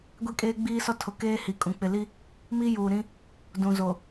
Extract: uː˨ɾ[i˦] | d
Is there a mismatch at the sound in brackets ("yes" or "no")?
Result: yes